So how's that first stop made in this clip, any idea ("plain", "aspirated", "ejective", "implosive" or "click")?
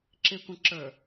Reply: click